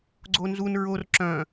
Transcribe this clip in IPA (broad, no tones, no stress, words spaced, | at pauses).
ɡ͡ǀonzun ɹor ǁœ̃